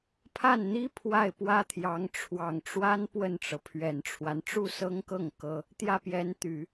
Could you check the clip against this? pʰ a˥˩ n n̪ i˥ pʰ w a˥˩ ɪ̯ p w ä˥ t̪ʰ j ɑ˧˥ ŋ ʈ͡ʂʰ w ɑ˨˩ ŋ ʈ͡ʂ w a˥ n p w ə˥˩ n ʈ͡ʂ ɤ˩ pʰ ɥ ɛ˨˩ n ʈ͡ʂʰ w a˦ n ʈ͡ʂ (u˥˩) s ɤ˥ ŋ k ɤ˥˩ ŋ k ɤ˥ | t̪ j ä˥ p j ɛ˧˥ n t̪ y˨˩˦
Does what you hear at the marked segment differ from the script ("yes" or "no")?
no